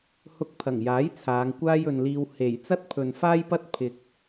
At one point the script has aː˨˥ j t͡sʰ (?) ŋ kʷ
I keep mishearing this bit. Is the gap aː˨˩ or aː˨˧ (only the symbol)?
aː˨˧